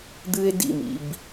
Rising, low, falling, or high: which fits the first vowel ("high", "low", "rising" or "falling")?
high